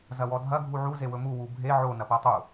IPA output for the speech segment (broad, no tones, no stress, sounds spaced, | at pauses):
z ɐ w ɔ dʱ ɐ ɡʱ u ʕ u z e w ɵ m u w u bʱ e ʕ o n ɐ p æ tˤ u